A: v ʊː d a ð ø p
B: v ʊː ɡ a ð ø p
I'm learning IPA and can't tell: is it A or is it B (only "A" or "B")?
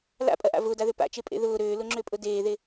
A